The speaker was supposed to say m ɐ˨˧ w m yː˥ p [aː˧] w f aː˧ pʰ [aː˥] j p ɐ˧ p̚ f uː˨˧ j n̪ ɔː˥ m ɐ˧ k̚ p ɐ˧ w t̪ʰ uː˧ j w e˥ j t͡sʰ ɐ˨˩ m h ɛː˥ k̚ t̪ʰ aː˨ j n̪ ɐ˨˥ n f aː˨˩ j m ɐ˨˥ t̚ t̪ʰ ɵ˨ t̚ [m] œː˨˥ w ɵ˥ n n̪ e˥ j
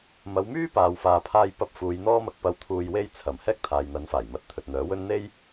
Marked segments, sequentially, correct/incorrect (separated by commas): correct, correct, incorrect